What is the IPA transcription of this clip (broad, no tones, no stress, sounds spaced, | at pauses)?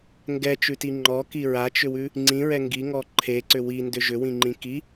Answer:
ŋ ɡ ɛ t͡ʃ ʉ t i ŋ͡ǃ ɔ k i ɹ a t͡ʃ ʏ w ʉ | ŋ͡ǀ ĩ ɹ ɛ ŋ ɡ i ŋ ɔ ǃʰ e ǀ ʏ w i n d ʏ ʒ ʏ w ĩ ŋ͡ǃ ĩ k i